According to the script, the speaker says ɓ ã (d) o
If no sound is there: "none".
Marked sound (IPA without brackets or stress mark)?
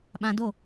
d